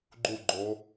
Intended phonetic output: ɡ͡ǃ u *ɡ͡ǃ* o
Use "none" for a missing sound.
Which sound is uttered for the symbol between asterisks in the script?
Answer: ɡ͡ǃ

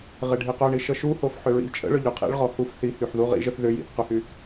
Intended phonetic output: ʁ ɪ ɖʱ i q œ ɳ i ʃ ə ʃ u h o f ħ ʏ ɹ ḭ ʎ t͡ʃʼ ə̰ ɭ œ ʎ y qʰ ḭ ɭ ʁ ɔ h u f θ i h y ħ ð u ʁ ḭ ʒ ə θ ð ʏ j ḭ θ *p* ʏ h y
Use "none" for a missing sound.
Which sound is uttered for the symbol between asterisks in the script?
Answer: q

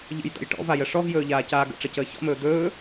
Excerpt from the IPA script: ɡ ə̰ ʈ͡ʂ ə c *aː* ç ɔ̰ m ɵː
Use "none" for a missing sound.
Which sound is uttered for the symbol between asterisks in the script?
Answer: əː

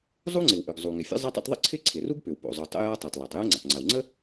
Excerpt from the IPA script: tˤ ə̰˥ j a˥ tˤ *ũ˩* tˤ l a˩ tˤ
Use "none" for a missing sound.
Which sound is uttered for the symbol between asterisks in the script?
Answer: u˩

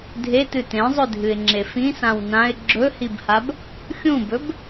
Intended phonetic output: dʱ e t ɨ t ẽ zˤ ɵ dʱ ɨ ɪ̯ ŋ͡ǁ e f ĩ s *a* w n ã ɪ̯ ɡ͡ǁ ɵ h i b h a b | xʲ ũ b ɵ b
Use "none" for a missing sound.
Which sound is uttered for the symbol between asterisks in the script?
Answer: ã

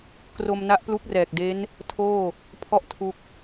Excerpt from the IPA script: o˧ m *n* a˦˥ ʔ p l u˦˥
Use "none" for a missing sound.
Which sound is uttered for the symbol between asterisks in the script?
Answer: n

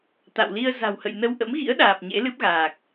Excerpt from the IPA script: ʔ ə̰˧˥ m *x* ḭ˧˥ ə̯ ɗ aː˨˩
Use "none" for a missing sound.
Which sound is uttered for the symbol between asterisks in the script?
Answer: ɣ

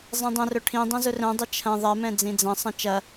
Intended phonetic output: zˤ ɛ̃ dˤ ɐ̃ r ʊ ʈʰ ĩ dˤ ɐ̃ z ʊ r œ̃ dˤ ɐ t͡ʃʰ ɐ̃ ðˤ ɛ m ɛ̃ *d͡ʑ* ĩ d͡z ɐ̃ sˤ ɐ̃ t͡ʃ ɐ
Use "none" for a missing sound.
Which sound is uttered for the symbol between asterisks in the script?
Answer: d͡z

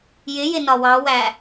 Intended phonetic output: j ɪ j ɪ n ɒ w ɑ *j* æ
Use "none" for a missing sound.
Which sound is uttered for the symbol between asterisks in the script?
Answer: w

